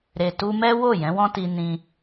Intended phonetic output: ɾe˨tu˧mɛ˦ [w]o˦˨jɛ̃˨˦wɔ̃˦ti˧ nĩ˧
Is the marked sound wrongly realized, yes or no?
no